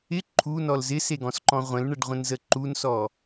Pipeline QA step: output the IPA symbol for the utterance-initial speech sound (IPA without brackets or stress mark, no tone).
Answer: ɪ